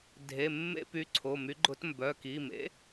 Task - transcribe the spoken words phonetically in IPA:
dʱ e˩˧˩ mː ḛ˦˨ p y˨˥ ǀʰ o˩˧˩ m y˨˥ ɡ͡ǃ ʊ˨˥ t m b œ˩˧˩ k i˩˧˩ m ḛ˨˥

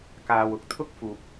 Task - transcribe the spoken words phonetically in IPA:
k aː˧ w ʊ˨ k̚ t̪ʰ ʊ˥ k̚ f uː˨ p̚

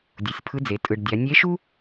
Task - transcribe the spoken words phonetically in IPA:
dʲ u˩˧ sʲ pʰ ɯ˧˥ d͡z e˩˧ tʼ ɯ˩ ɖ dʲ a˩˧ nʲ e˧˥ ʃ u˥

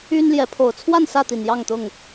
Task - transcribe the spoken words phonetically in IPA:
y˦ n l j ɛ˨˦ pʰ o˨˩ ʊ̯ t͡sʰ w a˥˨ n s ä˥˨ t̪ i˨˩ n j ɑ˥˨ ŋ t̪ ʊ˥˨ ŋ

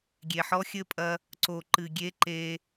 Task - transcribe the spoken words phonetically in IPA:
ɡʲ e˨ ħ ɔ˦ xʲ ɘ˦ pʼ ɐ˦ | ǀ o˨ ǃ ɨ˨ ɡʲ e˦ ǃ e˦

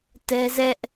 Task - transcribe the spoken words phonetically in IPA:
t ɛ˦ z ɛ˦ ʔ

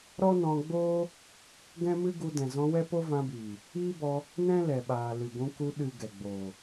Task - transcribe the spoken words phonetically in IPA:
ɾ ɔ˦ n ɔ̃˧ ɡ͡b oː˦ | ɡ ɛ̃˦ m ɨ˦ ɡ u˧ d ɛ̃˨ z ɔ̃˧ w ɛ˦ p o˦ v ã˧ b iː˨ | iː˦ b ɔ˧ | n ɛ̃˦ l ɛ˨ ɓ aː˨ l ɨ˨ ɡʷ ũ˧ k u˧ ɗ ɨ˨ ɡ ɛ˨ ɡ͡b oː˨

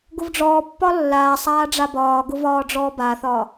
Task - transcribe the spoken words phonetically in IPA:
ɡ ʊ v ɖ͡ʐ ɔː pː ɒ lː aː sˤ aː ɖ͡ʐ a b ɒː ɡ ʊ v ɒː ɖ͡ʐ ɔː b a θ ɒː

